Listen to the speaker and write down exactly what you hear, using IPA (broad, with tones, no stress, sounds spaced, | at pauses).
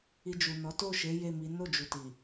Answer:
i˧ d͡ʒ u˨ n ɔ˨˦ t o˦˨ ʃ e˨˦ j e˦˨ m i˨˦ n o˦˨ d͡ʒ u˨ t i˨